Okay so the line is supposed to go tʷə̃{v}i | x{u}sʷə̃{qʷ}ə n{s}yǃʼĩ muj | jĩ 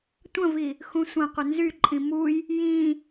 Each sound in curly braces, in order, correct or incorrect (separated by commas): correct, incorrect, correct, incorrect